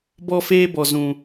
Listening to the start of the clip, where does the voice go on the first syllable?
high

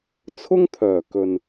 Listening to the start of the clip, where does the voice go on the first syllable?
high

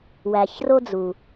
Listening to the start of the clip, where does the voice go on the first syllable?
low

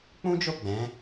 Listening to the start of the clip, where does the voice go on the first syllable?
high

